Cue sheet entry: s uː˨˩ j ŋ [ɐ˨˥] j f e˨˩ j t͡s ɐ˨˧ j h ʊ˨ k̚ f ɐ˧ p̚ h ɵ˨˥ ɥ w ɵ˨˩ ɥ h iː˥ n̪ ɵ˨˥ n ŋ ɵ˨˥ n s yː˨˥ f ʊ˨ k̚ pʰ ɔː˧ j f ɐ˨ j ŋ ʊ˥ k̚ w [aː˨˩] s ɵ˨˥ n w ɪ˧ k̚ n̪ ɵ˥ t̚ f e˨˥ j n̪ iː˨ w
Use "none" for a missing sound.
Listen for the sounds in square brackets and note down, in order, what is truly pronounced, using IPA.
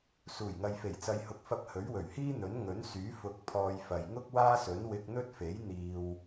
ɐ˨, aː˥

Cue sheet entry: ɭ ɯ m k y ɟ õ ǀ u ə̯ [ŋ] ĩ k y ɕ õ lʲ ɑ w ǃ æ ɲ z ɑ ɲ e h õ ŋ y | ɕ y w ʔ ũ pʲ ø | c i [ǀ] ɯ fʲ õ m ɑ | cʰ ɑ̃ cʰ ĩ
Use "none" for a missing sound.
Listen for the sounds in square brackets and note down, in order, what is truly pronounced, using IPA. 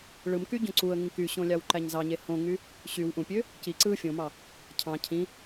ŋ, ǀ

